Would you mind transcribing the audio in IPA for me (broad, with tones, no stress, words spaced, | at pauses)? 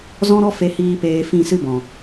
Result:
zɔ̃˦ɾɔ˦ fe˦hiː˦peː˧ fĩ˦˨sɨ˦bɔ̃˨